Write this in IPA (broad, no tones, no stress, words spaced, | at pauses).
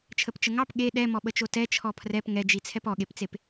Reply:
t͡ʃʰəpt͡ʃəŋɑp ɠe ɗɛ mɔɓət͡ʃotɛ t͡ʃʰɔpʰrɛp ŋɛd͡ʒi t͡sʰɛpɔɠept͡sep